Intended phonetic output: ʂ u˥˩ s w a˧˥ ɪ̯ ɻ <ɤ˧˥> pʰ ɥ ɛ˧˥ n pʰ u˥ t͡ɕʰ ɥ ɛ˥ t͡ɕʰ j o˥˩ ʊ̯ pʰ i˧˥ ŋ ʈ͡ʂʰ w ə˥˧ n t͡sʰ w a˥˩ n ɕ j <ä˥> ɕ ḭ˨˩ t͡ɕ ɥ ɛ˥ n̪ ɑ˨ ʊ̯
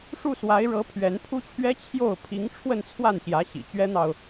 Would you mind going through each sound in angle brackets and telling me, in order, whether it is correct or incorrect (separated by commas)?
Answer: correct, incorrect